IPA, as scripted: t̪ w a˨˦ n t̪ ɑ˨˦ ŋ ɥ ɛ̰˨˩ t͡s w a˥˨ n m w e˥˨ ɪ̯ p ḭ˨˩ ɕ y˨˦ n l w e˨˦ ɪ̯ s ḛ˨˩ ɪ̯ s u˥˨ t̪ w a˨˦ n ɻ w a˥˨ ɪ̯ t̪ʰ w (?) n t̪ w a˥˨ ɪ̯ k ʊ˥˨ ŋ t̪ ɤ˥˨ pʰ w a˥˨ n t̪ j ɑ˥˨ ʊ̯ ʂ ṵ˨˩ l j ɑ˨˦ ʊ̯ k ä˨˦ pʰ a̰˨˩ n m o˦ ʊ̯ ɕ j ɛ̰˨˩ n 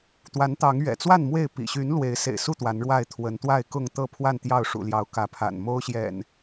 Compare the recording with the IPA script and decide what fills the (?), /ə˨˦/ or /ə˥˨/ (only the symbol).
ə˨˦